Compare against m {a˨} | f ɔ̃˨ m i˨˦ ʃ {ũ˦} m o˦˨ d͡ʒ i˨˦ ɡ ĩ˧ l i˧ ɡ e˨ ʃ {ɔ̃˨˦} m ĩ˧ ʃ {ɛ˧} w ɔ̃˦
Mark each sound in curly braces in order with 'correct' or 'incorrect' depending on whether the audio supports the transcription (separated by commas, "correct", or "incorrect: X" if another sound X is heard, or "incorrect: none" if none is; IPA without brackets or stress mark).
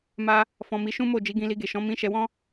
incorrect: a˧, correct, correct, correct